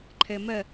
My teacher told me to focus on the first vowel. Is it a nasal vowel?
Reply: no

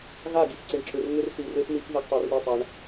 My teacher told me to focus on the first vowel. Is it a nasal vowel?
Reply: no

